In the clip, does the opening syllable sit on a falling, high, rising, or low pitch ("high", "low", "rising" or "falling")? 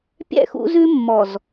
falling